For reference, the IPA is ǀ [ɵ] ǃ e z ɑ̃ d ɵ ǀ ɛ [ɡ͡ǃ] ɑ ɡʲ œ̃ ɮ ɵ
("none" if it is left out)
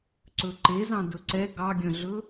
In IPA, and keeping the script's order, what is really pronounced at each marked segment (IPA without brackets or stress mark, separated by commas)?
ɵ, ɡ